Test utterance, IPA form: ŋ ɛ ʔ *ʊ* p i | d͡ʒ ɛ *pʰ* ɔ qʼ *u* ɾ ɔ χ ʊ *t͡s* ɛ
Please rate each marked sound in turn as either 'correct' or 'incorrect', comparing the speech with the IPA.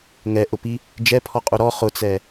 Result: correct, correct, correct, correct

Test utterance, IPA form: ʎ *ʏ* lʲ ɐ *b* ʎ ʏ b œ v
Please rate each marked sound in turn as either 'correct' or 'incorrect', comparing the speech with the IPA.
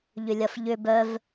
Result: correct, incorrect

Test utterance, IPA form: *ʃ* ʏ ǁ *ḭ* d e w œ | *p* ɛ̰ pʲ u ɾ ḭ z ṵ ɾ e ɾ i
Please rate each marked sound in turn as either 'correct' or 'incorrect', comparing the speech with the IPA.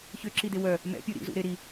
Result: incorrect, incorrect, incorrect

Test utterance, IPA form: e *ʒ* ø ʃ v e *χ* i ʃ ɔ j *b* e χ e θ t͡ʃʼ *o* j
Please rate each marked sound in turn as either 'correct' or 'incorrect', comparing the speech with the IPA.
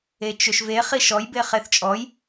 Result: incorrect, correct, correct, incorrect

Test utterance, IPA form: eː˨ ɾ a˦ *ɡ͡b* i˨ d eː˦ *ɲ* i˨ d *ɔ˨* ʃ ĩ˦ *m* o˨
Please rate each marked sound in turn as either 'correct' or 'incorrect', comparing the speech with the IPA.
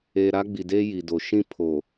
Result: correct, incorrect, incorrect, incorrect

